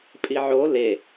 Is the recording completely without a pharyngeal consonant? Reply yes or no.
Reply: no